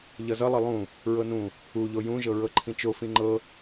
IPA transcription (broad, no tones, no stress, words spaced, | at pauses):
ʎʌzʌ lˠʌlˠũ | ɹɤnũ | uʎo jũʒɤɹɤ ǃʰĩt͡ʃofĩ ŋ͡ǃɤ